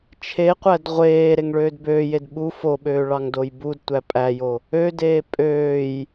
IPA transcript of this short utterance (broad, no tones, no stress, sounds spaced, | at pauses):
t͡ʃʰ e qʷ æ d ʁʷ eː ɾ e ŋ ɭ øː d b øː j e d ɓ u f o ɓ øː ɭ ɑ ŋ d o j b u d tʷ æ pʼ æ j o | ø d eː pʼ øː j